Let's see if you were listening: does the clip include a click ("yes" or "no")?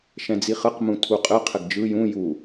no